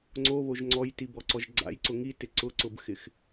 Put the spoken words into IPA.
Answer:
ŋ͡ǀ o β o ʒ ŋ͡ǀ ɔ j t i b ɔ ǀ ɔ ʒ ɡ͡ǀ a̰ j ǀ ʊ ŋ i t ɪ ǀ ʊ ǀ ʊ b x ɪ x

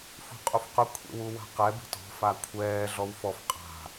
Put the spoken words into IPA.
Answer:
f ṳ qʼ u f q ʊ kʷʰ ḛ w u w a̤ q ɛ b i̤ t ɔ̤ f a kʷʰ ɛː ɮ ɔ w f ɔ f qʼ a̤

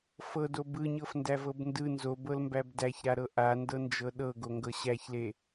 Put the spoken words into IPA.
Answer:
f ɤ d o b ɯ ɲ ɤ f n d æ v ɤ b n d ɯ n z o b ɤ l m b æ b d æ ç ɾ a ɾ ɤ ʔ a n d ɤ n d͡ʒ ɤ ɗ ɤ ɡ o ŋ ɡ ɤ ɕ æ ç l e

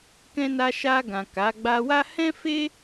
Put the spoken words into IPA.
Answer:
k ɛ̃˧ n a˧ ʃ a˧ ɡ ã˨ k a˨˦ ɡ͡b a˧ w a˦ h ɛ̃˦ f e˦

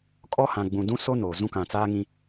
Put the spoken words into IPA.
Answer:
kʼ ɔ˦ h ã˨ ɡ͡b ũ˨ d ũ˦ s o˦ n oː˨ z ũ˦ k ã˨ t͡s aː˦ ŋ ĩ˦

